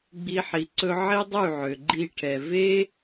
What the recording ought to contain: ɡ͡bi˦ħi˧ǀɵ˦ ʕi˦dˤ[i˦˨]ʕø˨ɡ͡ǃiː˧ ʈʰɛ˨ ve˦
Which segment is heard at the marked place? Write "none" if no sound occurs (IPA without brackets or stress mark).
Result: y˦˨